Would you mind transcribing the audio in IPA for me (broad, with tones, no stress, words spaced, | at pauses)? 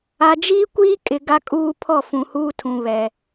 a˨d͡ʒiː˦ kʷiː˦kʼɪ˨ ɡa˦kʼuː˦ pʰɔ˦˨ fũ˨huː˦tʰũ˨βɛ˨